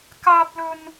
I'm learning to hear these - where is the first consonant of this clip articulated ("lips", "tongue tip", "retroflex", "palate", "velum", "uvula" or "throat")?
velum